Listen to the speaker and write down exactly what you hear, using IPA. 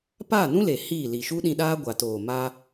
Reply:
p aː˦˨ n ũ˦ l e˨ h i˦˨ l i˨ ʃ u˦ ɗ ĩ˧ ɗ aː˦ ɡʷ a˨ t oː˨ m aː˧

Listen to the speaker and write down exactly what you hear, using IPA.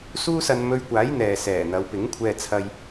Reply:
s uː˥ s ɐ˧ n m ɵ˧ ɥ kʷ aː˨˥ j n̪ ɛː˨ s ɛː˨˩ n̪ ɐ˨˧ w p ɪ˨˥ ŋ kʷʰ ɛː˧ t͡sʰ ɐ˧ j

